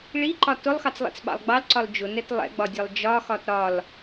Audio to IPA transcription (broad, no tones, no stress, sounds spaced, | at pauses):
ɭ i ǃ ɒ t ʊ lˠ x ɑ t͡s lˠ ḭ t͡s ɓ ɑ̰ lˠ ɡ͡b ɑ l ǀ ɒ l d͡ʒ ʊ n ɛ t lˠ ɛ̰ ɡ͡b ɒ dʲ ɛ lˠ d͡ʒ ɒ x ɒ t ɾ ɒ l